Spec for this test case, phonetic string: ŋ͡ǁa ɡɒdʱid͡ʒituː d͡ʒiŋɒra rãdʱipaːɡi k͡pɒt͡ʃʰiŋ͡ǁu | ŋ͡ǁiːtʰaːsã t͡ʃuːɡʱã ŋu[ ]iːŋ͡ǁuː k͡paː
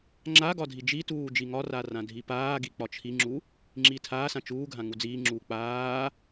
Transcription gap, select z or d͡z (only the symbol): d͡z